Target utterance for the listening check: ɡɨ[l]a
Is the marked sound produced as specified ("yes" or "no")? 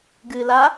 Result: yes